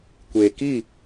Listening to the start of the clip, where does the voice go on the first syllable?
low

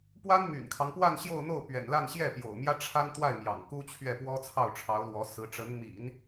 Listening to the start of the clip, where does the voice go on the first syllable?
high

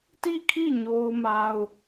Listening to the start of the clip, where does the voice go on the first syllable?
falling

